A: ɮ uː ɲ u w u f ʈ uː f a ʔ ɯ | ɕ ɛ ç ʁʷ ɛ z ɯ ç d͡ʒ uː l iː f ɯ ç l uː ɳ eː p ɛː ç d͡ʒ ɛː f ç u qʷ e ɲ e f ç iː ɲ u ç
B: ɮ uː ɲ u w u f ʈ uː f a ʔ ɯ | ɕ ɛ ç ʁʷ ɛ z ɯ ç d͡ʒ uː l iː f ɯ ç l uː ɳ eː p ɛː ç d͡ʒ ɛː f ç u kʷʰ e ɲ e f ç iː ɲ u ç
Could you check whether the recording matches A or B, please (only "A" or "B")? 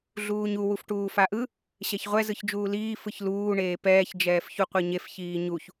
A